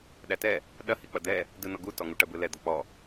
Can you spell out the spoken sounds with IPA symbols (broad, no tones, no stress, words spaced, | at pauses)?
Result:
ɗætɛ | ɗɐhi k͡pɐd̪ɛ | dɯnɔ ɡu tɔŋuʈɐbɯ lɛd̪ɔ k͡pɔ